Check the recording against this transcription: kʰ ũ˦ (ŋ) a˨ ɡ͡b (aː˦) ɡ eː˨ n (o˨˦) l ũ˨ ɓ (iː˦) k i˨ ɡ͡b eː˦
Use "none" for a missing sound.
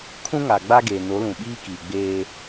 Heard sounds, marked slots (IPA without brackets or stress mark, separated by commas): ŋ, a˦, o˨˦, iː˦